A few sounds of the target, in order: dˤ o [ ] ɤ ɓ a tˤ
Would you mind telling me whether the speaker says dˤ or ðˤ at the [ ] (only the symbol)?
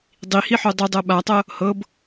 dˤ